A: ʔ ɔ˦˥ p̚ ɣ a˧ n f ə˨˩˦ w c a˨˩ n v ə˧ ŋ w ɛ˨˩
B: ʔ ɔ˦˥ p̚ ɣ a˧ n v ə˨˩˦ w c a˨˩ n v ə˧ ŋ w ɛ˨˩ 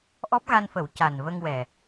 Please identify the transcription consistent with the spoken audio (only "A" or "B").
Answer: A